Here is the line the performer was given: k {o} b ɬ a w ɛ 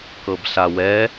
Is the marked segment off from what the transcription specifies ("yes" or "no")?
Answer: yes